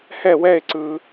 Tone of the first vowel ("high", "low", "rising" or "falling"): falling